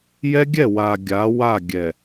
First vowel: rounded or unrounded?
unrounded